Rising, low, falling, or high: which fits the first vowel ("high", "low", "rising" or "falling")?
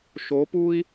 rising